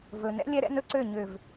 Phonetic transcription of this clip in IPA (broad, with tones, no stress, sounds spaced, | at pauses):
v ɵ˨ n ɛ̰˦ lʲ ɛ˦ ɾ ɛ̰˦ n ɵ˦ ǀ ø˦˨ ɲ ø˨ v